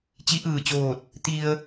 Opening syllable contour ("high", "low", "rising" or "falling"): rising